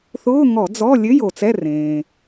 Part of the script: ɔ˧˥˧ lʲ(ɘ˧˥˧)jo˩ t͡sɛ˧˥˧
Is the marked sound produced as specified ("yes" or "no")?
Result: yes